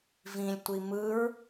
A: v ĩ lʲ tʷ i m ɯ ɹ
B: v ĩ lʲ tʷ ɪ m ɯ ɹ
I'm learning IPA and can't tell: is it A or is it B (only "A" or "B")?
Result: A